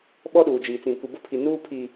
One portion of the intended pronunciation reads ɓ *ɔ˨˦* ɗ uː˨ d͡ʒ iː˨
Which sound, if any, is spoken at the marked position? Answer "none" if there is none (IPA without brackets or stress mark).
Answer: ɔ˦